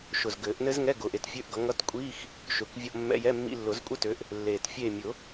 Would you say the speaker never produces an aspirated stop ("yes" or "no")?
yes